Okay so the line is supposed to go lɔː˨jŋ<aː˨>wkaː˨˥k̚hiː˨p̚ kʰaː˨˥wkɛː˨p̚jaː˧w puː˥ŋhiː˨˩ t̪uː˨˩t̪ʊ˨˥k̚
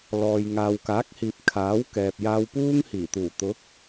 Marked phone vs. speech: correct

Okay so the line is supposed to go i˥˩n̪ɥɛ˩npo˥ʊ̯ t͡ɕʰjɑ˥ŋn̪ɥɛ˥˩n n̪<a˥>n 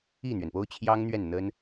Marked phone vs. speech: incorrect: ə˥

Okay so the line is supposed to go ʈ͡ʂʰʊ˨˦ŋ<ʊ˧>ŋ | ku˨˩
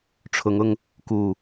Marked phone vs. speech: correct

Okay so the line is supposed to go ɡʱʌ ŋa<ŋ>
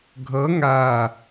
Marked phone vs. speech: incorrect: none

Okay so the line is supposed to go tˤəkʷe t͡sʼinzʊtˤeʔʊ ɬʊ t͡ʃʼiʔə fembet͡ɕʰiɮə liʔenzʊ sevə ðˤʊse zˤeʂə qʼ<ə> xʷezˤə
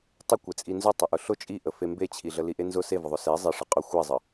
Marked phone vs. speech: incorrect: ʊ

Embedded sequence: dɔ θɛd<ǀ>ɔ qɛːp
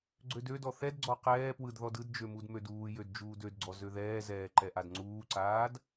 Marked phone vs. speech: incorrect: ɡ͡ǀ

